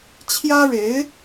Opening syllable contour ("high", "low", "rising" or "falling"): high